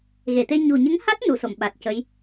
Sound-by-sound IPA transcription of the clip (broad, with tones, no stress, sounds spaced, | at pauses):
ɣ e˨˩˨ t̪ e˧ ɲ u˨˩ ɲ ə˧˥ ŋ h a˦˥ t̚ n u˨˩˨ s o˨˩˨ m ɓ a˨˩ t̚ c ə˧˥ j